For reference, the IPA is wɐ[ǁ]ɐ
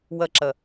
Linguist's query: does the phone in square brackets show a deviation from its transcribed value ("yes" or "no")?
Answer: no